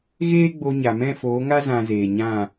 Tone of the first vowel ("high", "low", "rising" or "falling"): high